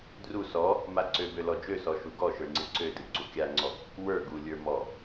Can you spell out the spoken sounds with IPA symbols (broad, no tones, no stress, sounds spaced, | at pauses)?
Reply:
d r u s ɔ | m a ǀ ø b ø l ɔ d͡ʒ ø s ɔ ʃ u ɡ ɔ ʃ ə˞ ŋ͡ǀ ɨ ǀ ø d ɨ ɡ͡ǀ u kʲ a ŋ͡ǀ ɔ | w ə˞ ɡ u lʲ ə˞ m ɔ